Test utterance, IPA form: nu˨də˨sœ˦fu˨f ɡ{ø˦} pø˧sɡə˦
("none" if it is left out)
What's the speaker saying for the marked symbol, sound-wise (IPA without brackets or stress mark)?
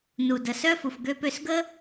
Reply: ø˦